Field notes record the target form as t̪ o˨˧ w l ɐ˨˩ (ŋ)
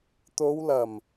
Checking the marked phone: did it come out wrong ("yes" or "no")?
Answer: yes